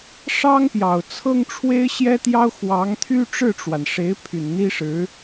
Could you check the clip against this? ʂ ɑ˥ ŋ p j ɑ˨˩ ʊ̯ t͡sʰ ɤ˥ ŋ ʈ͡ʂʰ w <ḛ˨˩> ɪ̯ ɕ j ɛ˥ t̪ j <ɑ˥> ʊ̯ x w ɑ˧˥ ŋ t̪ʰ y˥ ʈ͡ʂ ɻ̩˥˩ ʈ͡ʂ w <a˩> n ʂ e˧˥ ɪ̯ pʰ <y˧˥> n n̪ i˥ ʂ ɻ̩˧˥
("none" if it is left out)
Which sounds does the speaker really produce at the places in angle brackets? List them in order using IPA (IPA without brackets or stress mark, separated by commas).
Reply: e˥, ɑ˥, a˩, y˨˩